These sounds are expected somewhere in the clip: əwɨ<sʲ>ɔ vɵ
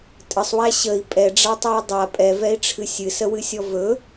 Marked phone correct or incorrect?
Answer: correct